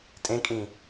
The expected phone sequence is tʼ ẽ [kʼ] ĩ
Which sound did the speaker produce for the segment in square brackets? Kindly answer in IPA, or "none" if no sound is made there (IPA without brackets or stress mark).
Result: kʼ